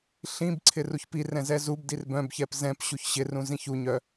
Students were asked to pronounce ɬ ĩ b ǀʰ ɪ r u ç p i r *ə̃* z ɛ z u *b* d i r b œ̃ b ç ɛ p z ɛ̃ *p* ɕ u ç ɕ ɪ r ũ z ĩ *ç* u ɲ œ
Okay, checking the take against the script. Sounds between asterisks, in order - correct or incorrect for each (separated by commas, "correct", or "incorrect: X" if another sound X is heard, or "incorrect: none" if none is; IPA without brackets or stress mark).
incorrect: ɛ̃, correct, correct, correct